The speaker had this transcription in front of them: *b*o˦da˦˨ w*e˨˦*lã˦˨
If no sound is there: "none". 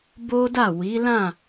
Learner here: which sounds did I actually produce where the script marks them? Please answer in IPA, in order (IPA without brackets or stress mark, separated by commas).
b, i˨˦